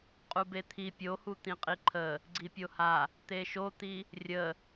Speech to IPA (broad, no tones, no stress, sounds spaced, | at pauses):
qʼ u b e t̪ʰ i pʲ o h u t̪ ĩ qʼ i ǃʰ ə | ɡ͡ǀ i pʲ o h a | t̪ e ʃ o t̪ i | rʲ ə